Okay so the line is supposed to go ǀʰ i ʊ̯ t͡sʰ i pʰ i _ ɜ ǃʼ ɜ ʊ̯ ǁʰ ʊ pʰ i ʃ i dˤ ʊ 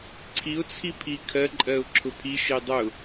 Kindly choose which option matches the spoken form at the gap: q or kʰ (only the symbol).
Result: kʰ